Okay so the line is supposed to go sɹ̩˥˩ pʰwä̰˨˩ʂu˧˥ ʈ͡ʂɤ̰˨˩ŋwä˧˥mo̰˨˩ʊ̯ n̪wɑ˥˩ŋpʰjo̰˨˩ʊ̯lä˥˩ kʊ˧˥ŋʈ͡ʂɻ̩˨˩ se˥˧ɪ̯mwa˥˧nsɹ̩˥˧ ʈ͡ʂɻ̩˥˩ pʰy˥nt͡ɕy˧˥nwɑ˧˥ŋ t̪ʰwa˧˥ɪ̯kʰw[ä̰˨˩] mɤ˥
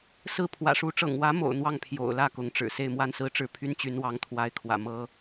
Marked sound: correct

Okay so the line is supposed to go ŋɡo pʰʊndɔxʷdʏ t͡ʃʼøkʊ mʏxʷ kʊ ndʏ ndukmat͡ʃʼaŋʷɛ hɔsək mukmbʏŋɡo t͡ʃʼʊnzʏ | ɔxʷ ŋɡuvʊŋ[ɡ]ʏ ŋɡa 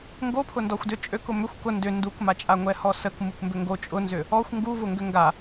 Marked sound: correct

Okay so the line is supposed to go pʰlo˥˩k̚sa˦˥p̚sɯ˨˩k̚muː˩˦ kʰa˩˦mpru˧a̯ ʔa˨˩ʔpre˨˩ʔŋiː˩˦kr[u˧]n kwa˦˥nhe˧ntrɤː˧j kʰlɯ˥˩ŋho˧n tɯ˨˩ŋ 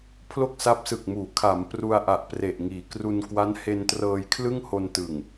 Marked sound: correct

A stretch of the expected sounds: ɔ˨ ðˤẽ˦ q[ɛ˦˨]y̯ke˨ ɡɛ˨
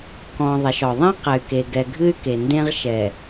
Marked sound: incorrect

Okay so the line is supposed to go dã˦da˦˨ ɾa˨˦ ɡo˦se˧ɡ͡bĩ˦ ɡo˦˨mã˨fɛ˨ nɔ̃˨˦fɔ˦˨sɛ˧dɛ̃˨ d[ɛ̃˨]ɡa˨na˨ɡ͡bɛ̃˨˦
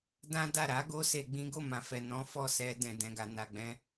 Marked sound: correct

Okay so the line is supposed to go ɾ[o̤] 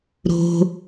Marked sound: correct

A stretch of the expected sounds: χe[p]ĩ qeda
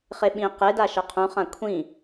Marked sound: incorrect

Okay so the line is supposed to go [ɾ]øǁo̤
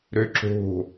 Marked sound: correct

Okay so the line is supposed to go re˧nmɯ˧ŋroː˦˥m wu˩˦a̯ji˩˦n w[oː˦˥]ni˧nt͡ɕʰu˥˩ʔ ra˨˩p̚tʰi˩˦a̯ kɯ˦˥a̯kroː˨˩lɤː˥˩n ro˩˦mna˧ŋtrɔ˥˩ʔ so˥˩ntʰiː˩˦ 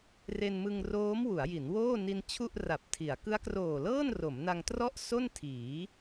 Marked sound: incorrect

